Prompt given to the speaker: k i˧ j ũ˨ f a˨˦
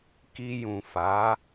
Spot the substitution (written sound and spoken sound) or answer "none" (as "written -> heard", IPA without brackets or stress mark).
none